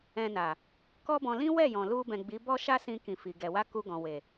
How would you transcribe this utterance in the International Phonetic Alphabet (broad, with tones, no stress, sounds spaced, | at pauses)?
ɛ̃˧ n a˨ | k ɔ˦ b ɔ̃˧ l ĩ˦ w ɛ˦˨ j ɔ̃˨ l u˧ b ɛ̃˨ ɡ͡b i˨˦ b ɔ˦ ʃ a˦ s ĩ˧ k ĩ˨ f i˨ ɡ ɛ˨ w a˧ k u˧ ɡ ɔ̃˨ w e˨